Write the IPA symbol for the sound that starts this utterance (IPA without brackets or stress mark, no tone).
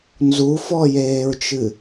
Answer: n